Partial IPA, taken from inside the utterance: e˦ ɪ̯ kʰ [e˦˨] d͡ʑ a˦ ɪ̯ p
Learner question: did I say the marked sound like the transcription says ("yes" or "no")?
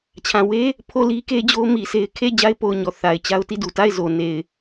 yes